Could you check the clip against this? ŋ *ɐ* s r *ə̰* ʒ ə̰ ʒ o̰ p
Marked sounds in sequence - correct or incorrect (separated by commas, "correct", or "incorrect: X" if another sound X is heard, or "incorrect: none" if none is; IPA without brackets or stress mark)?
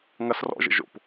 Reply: correct, incorrect: ɔ̰